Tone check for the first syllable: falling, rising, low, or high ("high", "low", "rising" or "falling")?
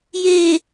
low